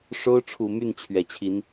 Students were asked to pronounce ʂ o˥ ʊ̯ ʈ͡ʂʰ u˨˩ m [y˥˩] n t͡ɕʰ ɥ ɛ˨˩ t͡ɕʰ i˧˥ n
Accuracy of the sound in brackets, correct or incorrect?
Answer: correct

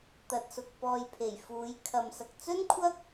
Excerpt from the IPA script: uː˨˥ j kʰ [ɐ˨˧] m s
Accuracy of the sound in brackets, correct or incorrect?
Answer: correct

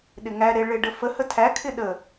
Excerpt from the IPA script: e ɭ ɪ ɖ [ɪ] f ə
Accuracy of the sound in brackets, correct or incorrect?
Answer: incorrect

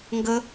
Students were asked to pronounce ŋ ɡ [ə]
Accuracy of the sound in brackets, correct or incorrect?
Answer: correct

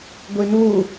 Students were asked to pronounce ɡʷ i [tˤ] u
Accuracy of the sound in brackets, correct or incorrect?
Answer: incorrect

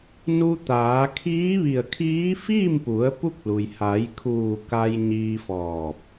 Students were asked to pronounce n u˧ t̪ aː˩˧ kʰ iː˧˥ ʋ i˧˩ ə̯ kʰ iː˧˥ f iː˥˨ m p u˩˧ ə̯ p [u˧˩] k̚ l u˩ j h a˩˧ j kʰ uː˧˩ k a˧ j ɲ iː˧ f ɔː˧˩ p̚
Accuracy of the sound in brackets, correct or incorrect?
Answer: incorrect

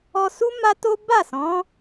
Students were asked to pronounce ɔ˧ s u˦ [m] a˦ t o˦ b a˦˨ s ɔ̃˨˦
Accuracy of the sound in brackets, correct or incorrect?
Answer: correct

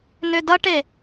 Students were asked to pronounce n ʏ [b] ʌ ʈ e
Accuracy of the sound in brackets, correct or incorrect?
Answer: incorrect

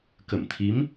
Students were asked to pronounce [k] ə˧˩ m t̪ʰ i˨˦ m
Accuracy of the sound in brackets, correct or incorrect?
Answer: correct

